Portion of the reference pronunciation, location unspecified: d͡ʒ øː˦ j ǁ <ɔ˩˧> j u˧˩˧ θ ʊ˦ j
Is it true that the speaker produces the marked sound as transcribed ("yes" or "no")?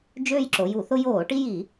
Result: no